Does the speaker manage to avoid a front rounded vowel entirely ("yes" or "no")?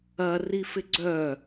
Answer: no